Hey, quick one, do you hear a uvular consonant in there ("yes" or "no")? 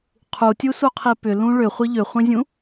yes